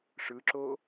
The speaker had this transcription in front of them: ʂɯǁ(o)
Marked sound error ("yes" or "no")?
no